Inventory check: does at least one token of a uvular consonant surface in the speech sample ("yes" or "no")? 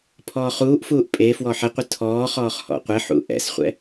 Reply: yes